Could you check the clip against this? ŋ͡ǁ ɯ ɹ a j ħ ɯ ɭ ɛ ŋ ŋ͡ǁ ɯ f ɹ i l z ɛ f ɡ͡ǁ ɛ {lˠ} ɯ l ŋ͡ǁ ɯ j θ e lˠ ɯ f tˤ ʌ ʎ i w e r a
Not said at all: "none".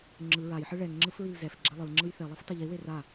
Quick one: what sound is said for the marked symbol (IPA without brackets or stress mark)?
lˠ